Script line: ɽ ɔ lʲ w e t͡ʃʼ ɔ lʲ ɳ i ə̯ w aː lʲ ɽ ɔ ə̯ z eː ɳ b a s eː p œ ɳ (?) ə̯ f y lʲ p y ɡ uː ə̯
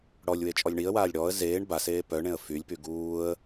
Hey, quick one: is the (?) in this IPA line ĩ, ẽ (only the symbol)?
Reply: ẽ